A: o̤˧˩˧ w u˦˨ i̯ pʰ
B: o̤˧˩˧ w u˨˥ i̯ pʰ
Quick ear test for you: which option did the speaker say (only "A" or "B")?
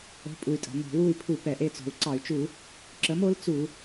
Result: A